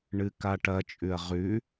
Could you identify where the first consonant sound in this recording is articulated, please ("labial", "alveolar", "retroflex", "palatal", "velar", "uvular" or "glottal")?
retroflex